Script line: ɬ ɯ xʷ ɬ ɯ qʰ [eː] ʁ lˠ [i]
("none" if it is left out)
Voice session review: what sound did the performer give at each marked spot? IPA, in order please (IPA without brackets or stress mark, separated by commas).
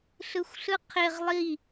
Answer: e, i